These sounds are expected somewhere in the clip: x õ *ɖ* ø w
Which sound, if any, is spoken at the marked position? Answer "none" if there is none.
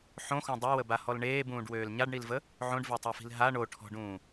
dˤ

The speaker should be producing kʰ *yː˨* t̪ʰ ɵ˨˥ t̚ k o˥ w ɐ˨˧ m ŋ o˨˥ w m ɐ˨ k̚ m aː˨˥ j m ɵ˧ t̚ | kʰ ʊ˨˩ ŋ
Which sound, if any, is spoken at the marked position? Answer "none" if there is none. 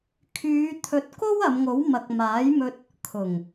yː˨˧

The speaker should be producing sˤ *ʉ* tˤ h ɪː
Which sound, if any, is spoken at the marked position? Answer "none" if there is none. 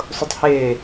ʊ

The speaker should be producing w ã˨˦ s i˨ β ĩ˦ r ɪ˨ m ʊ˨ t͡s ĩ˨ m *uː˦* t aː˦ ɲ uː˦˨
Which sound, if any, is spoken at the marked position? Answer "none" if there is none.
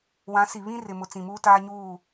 uː˦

